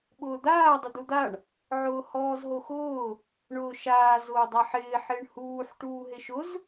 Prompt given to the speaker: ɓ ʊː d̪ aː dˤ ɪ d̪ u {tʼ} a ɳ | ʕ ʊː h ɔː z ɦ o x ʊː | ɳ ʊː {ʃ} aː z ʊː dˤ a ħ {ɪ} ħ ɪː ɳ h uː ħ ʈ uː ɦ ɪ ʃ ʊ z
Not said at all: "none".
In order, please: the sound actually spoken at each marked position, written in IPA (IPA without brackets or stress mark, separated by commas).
d̪, ʃ, ɪː